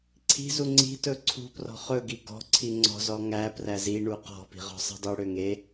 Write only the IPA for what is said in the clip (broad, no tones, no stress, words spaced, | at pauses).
ǀʰi̤zu ŋ͡ǀi̤ tɵǀʰṳprɔ̤ χɵɡi ɡɔ̤ǀʰi ŋ͡ǀɔ̤ zɔŋæpræ ziɳu qɔ̤pi̤ ʁɔ̤sˤi̤dˤyɽø ŋe